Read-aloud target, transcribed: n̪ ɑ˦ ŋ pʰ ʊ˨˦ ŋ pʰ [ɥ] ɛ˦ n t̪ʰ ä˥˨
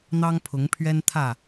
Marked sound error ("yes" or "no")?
no